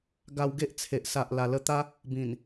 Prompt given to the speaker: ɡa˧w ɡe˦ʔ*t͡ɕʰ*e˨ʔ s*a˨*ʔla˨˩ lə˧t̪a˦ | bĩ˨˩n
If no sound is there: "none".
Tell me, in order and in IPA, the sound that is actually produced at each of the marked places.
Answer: t͡sʰ, a˨

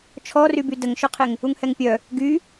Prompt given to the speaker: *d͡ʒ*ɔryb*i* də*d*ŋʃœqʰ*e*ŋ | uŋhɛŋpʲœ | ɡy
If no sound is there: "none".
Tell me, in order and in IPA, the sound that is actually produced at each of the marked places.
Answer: t͡ʃʰ, y, none, e

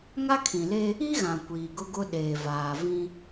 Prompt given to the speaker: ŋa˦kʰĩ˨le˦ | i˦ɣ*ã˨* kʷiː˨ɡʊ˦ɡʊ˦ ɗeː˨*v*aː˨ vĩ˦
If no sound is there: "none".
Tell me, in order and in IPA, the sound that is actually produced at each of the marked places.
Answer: ã˨, v

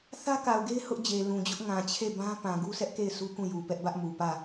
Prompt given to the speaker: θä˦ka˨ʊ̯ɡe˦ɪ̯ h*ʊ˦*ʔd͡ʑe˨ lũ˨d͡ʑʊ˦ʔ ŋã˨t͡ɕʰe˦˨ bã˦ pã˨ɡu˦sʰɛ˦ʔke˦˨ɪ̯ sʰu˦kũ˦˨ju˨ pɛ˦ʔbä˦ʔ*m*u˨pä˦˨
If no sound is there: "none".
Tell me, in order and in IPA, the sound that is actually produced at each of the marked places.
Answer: ʊ˦, m

